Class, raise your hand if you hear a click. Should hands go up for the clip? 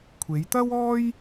no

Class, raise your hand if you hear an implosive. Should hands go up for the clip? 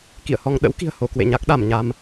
yes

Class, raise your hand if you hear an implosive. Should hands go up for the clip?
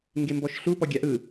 no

